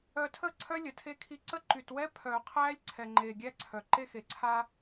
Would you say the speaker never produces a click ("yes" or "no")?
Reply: no